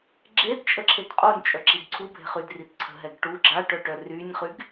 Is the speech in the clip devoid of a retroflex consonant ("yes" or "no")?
no